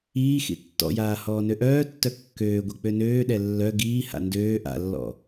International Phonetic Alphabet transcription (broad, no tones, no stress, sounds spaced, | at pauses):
iː x ḭ tː ɔ̰ j aː h ɔː n ø ʔ œː tː œ kː øː ɡʷ i k͡p ø n øː ɗ ɛ lː œ ɡ iː h a̰ n d øː ʔ a̰ lː ɔ̰